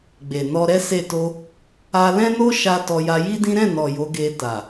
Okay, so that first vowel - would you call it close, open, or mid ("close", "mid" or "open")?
mid